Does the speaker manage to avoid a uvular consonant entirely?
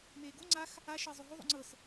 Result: yes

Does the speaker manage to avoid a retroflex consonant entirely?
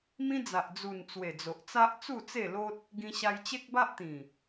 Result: yes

